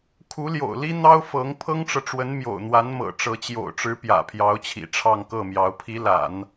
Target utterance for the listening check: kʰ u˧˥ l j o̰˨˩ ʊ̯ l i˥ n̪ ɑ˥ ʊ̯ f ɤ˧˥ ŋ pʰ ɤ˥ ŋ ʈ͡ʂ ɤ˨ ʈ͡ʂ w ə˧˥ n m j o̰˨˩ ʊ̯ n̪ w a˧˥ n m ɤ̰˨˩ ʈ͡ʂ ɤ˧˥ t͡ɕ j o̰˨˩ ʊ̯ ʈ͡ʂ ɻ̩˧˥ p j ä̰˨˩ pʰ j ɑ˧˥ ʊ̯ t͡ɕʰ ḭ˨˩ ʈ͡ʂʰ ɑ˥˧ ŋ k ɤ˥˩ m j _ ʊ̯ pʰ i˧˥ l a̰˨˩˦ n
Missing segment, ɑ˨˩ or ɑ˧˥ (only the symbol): ɑ˧˥